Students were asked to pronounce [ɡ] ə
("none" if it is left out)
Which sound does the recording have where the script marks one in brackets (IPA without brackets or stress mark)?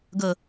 ɡ